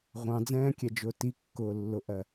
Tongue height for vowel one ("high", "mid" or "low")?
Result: low